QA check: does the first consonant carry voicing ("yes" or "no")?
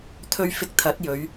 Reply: no